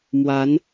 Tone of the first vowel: rising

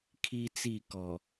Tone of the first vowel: high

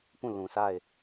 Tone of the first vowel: falling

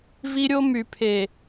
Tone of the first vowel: high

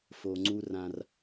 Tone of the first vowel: low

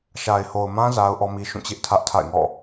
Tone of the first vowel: low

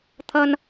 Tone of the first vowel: high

